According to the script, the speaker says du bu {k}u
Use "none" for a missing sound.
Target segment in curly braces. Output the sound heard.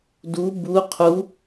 qʰ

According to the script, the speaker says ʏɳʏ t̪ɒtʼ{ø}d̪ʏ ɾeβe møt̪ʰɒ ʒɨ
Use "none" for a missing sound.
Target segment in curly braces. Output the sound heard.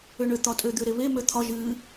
ø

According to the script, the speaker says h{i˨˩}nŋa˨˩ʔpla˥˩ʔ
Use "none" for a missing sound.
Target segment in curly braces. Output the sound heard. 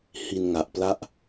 i˧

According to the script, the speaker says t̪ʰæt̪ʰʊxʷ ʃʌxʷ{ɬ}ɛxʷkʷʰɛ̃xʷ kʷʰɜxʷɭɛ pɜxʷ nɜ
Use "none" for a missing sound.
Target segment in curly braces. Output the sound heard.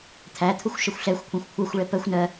ɬ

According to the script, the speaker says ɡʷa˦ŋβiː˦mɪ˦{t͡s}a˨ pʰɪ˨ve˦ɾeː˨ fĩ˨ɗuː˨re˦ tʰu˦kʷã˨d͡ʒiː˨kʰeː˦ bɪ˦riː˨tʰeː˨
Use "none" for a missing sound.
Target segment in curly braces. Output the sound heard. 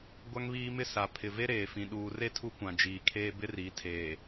s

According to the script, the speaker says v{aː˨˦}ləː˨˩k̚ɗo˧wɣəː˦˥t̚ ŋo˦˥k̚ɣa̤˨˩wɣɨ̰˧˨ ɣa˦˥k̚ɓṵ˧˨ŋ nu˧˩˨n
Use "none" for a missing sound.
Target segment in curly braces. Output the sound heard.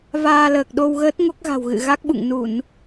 aː˧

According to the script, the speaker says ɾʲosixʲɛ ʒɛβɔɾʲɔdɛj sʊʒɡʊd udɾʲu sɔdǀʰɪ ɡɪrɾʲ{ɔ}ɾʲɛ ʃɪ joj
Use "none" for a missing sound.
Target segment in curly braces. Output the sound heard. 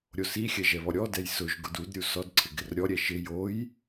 ɔ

